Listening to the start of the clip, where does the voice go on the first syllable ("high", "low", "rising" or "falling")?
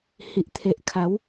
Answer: low